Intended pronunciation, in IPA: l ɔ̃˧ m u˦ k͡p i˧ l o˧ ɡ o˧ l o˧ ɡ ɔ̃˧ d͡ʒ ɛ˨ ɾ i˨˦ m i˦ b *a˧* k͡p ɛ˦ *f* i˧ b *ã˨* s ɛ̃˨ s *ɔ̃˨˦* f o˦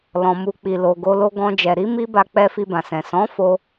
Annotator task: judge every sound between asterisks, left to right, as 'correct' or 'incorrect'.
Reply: correct, correct, correct, correct

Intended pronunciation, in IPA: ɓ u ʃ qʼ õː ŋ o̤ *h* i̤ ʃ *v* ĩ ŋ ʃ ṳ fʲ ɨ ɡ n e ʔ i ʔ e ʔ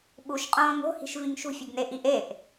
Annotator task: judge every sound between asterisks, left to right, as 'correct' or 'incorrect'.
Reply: correct, correct

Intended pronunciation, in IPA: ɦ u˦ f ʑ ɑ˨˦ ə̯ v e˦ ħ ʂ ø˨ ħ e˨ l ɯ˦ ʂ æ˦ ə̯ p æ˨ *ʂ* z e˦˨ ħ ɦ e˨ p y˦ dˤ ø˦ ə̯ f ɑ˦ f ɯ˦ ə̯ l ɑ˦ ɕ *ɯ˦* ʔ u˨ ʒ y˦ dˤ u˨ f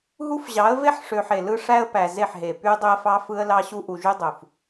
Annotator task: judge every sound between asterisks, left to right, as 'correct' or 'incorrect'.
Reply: incorrect, incorrect

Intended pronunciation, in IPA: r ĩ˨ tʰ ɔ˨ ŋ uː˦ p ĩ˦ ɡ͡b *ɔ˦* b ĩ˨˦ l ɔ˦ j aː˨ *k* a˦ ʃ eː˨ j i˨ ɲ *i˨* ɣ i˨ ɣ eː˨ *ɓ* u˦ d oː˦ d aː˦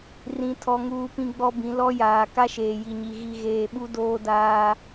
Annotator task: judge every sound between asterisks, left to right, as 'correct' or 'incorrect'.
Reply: correct, correct, correct, correct

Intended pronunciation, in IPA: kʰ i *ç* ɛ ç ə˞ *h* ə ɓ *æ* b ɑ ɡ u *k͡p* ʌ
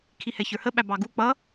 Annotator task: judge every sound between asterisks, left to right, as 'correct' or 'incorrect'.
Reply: incorrect, correct, correct, correct

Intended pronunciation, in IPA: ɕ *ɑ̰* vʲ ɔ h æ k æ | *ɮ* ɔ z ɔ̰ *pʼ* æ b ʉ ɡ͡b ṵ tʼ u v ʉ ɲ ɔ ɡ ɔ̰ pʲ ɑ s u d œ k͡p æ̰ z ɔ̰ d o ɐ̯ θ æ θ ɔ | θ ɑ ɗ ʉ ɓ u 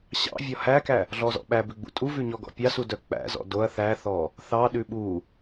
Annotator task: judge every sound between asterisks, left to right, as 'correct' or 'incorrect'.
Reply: correct, correct, incorrect

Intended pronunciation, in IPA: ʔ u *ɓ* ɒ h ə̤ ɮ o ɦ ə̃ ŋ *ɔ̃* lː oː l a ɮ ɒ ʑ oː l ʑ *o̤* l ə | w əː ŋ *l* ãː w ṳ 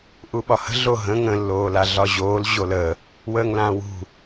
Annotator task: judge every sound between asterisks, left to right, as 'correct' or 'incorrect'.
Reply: correct, incorrect, incorrect, correct

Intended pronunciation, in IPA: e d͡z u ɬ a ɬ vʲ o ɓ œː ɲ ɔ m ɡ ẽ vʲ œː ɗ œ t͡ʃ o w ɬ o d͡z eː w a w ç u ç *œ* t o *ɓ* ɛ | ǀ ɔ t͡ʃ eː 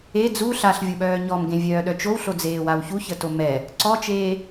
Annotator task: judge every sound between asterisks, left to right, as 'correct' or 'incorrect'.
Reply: incorrect, incorrect

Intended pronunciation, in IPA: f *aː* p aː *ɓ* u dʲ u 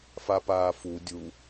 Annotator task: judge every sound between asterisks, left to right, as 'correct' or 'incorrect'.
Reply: incorrect, incorrect

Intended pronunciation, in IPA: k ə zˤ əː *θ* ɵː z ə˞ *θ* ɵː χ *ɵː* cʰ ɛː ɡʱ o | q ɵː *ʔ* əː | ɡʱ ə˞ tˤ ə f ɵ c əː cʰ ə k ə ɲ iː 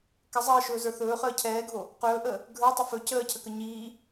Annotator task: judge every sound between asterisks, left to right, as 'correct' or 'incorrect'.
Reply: incorrect, correct, incorrect, correct

